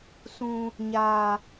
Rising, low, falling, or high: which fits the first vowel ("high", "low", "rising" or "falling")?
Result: low